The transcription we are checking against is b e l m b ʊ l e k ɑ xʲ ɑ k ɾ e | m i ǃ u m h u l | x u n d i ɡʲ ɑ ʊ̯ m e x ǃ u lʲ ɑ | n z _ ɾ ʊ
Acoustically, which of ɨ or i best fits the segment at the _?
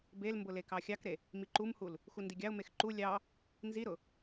i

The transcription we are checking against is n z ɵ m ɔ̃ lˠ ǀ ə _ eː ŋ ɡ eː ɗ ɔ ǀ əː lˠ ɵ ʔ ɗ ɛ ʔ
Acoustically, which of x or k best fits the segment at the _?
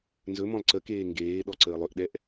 k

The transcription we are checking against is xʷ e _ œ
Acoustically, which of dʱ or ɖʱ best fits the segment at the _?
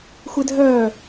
dʱ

